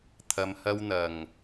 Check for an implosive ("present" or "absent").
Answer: absent